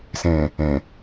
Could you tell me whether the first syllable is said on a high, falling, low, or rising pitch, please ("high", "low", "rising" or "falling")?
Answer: low